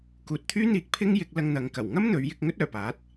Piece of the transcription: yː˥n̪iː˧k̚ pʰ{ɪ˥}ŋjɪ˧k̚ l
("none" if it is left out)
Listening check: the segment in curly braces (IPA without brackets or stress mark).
ɪ˥